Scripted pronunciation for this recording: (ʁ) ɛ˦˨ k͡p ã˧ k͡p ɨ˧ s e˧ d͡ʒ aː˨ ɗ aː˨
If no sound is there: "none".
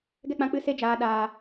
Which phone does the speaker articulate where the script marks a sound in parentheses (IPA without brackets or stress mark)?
ɡ